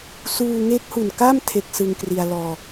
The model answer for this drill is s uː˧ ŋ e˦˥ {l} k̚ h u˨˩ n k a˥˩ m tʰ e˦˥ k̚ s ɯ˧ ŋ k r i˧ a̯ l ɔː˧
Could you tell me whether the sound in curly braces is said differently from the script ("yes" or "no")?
yes